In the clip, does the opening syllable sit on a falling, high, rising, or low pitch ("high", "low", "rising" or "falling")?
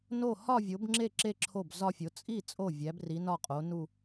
falling